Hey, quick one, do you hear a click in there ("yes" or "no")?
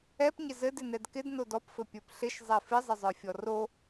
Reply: no